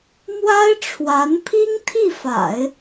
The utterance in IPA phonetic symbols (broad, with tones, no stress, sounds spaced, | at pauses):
m w a˥ ɪ̯ ʈ͡ʂʰ w a˧˥ n pʰ i˥ ŋ t̪ʰ i˥˩ f a̰˨˩˦ ɪ̯